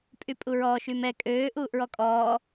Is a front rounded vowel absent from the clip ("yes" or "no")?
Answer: no